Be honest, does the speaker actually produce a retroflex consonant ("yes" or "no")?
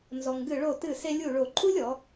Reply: yes